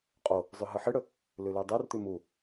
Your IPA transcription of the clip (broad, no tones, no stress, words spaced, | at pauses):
qʼo | zˤʉɦɨħɨɽɵ | lʉlʉdˤʉrt̪ʉ mu